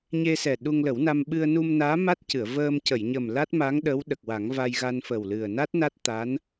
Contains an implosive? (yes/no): yes